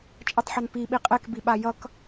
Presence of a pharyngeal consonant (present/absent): present